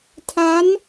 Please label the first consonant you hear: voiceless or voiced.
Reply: voiceless